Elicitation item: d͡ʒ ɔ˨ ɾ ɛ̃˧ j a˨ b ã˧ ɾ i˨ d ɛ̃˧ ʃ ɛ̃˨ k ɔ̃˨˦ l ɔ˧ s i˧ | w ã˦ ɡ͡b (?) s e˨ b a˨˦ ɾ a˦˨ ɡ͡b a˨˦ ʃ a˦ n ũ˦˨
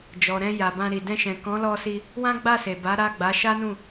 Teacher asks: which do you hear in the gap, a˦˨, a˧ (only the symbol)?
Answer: a˦˨